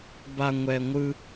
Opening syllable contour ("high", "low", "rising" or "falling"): low